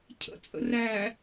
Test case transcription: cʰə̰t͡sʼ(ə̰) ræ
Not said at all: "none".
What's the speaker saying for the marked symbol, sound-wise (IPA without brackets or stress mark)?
ə̰